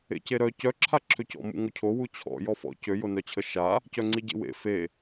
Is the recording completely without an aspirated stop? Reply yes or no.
no